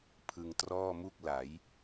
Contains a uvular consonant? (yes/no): no